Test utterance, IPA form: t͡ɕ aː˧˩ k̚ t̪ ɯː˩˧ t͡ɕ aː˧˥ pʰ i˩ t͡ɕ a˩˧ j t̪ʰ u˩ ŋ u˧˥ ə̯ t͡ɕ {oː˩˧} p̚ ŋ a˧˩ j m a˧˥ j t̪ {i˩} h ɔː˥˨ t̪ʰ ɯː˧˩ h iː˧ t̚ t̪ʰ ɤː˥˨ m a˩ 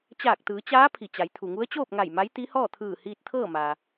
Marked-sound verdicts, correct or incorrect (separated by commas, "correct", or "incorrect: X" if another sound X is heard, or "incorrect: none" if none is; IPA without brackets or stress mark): incorrect: oː˥˨, incorrect: i˧˥